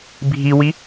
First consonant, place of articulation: labial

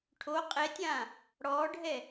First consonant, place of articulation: retroflex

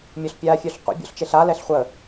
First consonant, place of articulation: labial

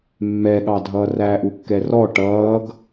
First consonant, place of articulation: labial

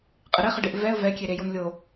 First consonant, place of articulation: uvular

